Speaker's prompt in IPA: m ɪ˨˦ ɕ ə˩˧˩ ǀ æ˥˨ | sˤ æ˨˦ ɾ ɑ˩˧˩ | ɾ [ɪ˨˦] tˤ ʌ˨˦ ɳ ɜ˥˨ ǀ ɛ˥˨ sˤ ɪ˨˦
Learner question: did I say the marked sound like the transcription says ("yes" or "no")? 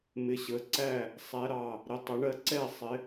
yes